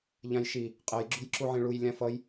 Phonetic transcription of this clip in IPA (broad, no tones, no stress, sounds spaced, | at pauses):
ʎ ã j ʃ i | qʼ ɛ j ɡ͡ǁ ṳ j ǁ u ʕ ẽ ɭ u j lʲ ã f ʌ j